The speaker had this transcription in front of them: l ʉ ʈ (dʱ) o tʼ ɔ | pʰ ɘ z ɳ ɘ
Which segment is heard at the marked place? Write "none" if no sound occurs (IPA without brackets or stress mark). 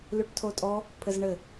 tʰ